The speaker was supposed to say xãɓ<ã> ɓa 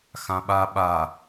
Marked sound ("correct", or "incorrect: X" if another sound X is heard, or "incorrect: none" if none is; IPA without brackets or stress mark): incorrect: a